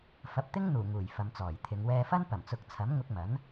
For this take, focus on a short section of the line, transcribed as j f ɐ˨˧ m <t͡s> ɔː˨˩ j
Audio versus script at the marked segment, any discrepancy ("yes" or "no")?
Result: no